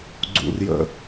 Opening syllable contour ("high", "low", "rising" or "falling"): low